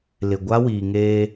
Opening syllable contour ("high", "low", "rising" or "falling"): low